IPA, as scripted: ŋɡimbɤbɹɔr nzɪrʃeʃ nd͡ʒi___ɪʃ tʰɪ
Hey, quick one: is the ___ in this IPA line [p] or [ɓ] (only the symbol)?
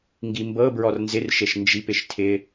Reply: p